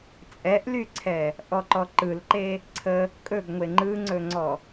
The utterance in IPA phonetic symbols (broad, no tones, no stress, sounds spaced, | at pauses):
t͡sʼ ɛ ʔ l y ǀʰ ɛ | ʔ ɔ ǃ ɔ ǃ ɯ l ǃ e | ǀʰ ə | kʼ ɵ ɡ ŋʷ e ŋ͡ǃ ɯ ŋ͡ǀ ɵ ŋ͡ǀ ɔ